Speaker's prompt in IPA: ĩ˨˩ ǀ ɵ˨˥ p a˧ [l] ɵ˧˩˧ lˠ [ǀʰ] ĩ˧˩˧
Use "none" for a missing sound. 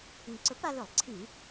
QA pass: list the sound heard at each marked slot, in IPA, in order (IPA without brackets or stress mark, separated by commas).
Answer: l, ǀʰ